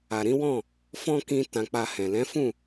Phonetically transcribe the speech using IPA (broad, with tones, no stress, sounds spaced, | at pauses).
a˨ ɾ ĩ˨˦ w ɔ̃˦˨ | f ɔ̃˦ k ĩ˧ t ã˧ k͡p a˧ h ɛ̃˨ l ɛ̃˨˦ f ũ˦˨